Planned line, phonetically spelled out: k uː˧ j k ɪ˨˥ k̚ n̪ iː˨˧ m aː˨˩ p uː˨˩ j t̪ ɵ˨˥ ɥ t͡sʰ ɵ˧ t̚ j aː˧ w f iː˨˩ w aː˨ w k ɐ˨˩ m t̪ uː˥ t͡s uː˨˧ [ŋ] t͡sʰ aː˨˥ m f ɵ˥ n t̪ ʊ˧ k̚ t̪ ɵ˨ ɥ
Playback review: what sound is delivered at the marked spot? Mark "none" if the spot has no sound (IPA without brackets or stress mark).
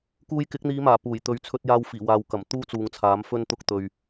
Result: ŋ